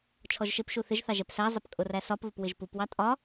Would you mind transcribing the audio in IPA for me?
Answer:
t͡ʃʰ ɔ ʒ ʃ ɪ p ʃ u θ ɪ ʒ θ ɑ ʒ ɛ p s æ zˤ ɪ p kʼ ʊ r æ s ɒ p β ɪ p w ɪ ʒ p u p w ɑ tʼ ɒ

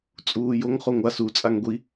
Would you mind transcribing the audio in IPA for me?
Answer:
t͡sʼ uː j o ŋ χ o ŋʷ a s u t͡sʼ a ŋ ɡʷ i

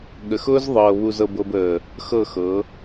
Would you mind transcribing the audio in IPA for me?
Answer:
ɠ ə˨ x ʊː˦ z ðˤ ɤː˨ β u˨ z ɤ˨ b ɤ˨ b əː˨ | x ɤ˦˨ x ɤ˨˦

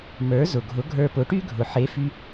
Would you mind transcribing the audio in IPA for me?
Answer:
m ə˞˩˥ z ʊ˩ ɡʱ ʊ˩˥ ɡʱ ə˞˧ p ʊ˩˥ ʈ y˥ ɡʱ ʊ˩ ħ e˩˥ f y˧

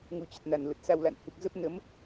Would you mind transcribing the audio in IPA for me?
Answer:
ŋ u˨˦ t͡ɕ ə˨˩ t̚ n a˨˩ n l ə˨˩ t̚ s a˧ w l a̰˧˨ n h ɨ˨˩ k̚ z ə˦˥ p̚ n ə˨˦ m

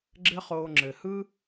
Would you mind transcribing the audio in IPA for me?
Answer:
ɡ͡ǁ ɘ˦ χ oː˧ ŋ͡ǁ ɘ˨ h ɯ˦

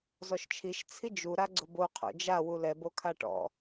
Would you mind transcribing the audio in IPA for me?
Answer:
z ɔ ʃ t͡ʃʰ i ʃ t͡sʰ i d͡ʒ u ɾ a ɡ͡ǀ ʊ b o qʰ o̰ d͡ʒ a w u l ɛ b o kʰ a ʈ ɔ̰

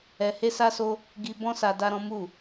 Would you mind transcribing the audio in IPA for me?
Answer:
ɛ˧ h e˦ s a˦ s o˦ | ɡ i˧ b ɔ̃˦ s a˧ d a˦ ɾ ɔ̃˦ m u˦˨

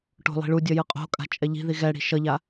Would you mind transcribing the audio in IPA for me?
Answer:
ʈ o̤ lˠ i̤ ɭ u dʲ ʌ j ɯ qʼ o̤ kʼ a̤ t͡ʃʼ ɛ ʎ i̤ ð i ɣ ɛ ɽ i̤ ʃ ʌ ʎ a

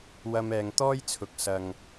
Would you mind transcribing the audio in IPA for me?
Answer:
w ɐ˧ m ɛː˨ ŋ t̪ ɔː˥ j t͡sʰ ʊ˨ k̚ s ɐ˨ ŋ

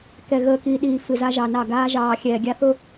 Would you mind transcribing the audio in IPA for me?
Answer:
k ɛ˨ ɣ əː˨ k i˨ ɗ iː˨ f ɨ˨ z a˦ ʒ ɑ˨ n ɑ˦˨ ɡ aː˦ ʒ ɑː˨ xʲ ɛː˨ ɡʲ a˦ θ ʊ˦

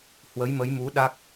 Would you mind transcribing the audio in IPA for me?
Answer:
h w ə˨˦ j m ə˨˦ j m u˨˦ ɗ a˦˥ k̚

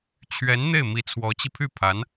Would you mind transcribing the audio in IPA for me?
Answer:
t͡ɕʰ ɥ ɛ˧˥ n n̪ e˥˩ ɪ̯ m i˧˥ t͡sʰ w ɔ˧˥ t͡ɕ i˧ pʰ y˥˩ pʰ a˧˥ n

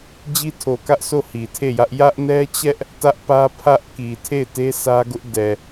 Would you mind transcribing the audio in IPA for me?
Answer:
d͡ʑ i˦ tʰ o˨ k ä˦ ʔ sʰ o˦˨ h i˨ tʰ e˦˨ j ä˦ ʔ j ä˦ ʔ n ɛ˦ t͡ɕ ɛ˦ ʔ | t ä˦ ʔ p ä˦ pʰ ä˦ ʔ k i˨ tʰ e˦˨ ɪ̯ t e˦ sʰ ä˦ ɡ ʊ˦ ʔ d ɛ˨

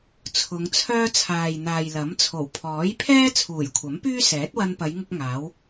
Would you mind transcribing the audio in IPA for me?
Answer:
t͡sʰ ʊ˨˧ ŋ t͡sʰ œː˥ t͡sʰ aː˨ j n̪ aː˨ j l ɐ˨˥ m t͡sʰ o˨˩ w pʰ ɔː˨˥ j pʰ ɛː˥ t͡sʰ uː˨˩ j kʷʰ ɐ˨˥ m p yː˥ s ɛː˨˥ t̚ w ɐ˧ n p ɐ˨˧ j ŋ ʊ˧ k̚ ŋ aː˨˥ w

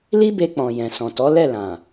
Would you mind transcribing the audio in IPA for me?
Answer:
l i˦ b e˧ k͡p ɔ̃˨ j ɛ̃˨ s ɔ̃˨ t ɔ˨˦ l ɛ˦˨ l ã˨

